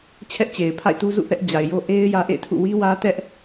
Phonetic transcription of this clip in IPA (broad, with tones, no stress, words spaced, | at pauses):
t͡ɕʰɛ˦ʔt͡ɕe˨ɪ̯pʰa̰˦˨ɪ̯tu˦ zṵ˦˨ θɛ˦ʔ d͡ʑa˨ɪ̯jo˦ ʔe˦ɪ̯ jä˦ʔḛ˦˨ɪ̯tʰṵ˦˨ wi˦wä˦ tɛ˦ʔ